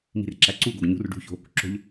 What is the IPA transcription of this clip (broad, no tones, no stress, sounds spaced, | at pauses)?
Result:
m i̤ r ǁ æ ǀ u ɡ o ɡ ɲ ṳ r ɖ ṳ ç o̤ | ǁ o̤ ʎ